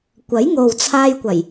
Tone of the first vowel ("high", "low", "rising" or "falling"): rising